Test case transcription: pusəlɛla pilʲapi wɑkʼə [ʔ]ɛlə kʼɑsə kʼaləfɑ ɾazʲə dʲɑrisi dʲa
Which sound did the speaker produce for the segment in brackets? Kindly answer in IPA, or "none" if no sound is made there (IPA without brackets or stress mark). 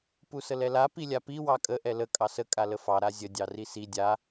ʔ